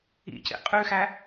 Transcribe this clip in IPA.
ḭ c ḭ qʼ ʉ x æ

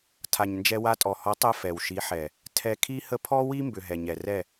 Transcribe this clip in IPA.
tʰ a˨ ɲ n d͡ʒ ɛ˧ w a˧ tʼ ɔ˨ h ɔ˨˦ tˤ ɛ˧ f ɛ˨ w ʃ i˨˦ ħ ɛ˨ | tʰ ɛ˧ kʰ i˦ h ə˦ pʰ ɔ˦ w i˦ m b ʏ˨ ɦ ɛ˨ ɲ ɛ˨ r ɛ˦˨

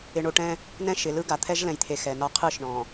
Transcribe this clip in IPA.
ɪ˨ ɳ o˨ ʈ ɛ̃˦ | n ɛ̃˦ ʃ ɪ˨ l ɯ˦ ɡ a˨ t̪ʰ ɛ˦ ʒ l ɛ̃˨ j t̪ʰ e˨ x ɛ˨ n ɒ˦ qʰ ɯ˦˨ ʃ ɳ ɔ̃˨

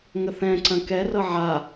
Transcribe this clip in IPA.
ŋ ə θ ɛ̃ ǀ ɐ̃ k ɛ r ɤ ʕ a

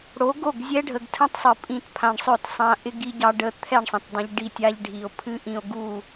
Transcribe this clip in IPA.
ɽ o˨˦ ɡ o˦˨ ɡ zʲ ɛ˦ ɖʱ ə˨ ɡ tʰ ə̃˦ tˤ sˤ ɨ˨ pʼ ĩ˦˨ t pʰ ã˧ ɳ sˤ ɵ˦˨ t sˤ ã˦ ʔ ɪ˦ ɡ i˦ ɟ ɑ˦ ɖ ə˧ t̪ʰ ɛ˦˨ ɳ sˤ ə̃˨ t dˤ ã˧ ʎ ɖ i˦˨ tʲ a˦ ʎ ɖʱ i˨ o̯ pʰ ɨ˦ ʔ ĩ˧ o̯ ɡ u˦˨

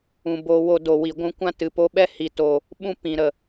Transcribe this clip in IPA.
ũ˨ b o˧ w o˧ d o˨ w i˨ ɡʷ ũ˧ kʷ ã˦ t ɨ˨ p o˧ ɓ ɛ˦ h i˨ t o˨ | ɓ ũ˦ p ĩ˨ ɾ ə˨

